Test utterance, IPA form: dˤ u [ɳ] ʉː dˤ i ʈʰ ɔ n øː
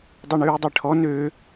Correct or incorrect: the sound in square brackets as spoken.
correct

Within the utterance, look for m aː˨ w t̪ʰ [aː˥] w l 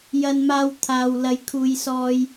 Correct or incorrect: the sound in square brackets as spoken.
incorrect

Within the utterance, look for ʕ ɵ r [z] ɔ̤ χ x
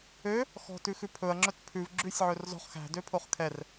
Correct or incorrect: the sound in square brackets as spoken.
correct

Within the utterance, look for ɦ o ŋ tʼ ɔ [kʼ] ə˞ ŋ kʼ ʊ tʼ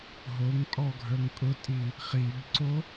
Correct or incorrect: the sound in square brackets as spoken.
incorrect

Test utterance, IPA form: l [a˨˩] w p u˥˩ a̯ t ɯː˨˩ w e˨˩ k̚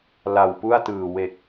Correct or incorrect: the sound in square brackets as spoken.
correct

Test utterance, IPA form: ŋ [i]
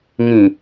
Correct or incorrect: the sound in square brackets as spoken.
incorrect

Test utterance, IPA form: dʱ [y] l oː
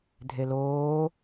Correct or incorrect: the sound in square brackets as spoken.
incorrect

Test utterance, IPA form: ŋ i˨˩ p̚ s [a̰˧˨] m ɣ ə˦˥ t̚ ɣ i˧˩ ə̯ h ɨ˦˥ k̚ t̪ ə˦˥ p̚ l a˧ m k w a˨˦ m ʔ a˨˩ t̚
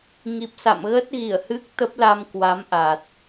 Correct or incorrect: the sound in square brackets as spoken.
correct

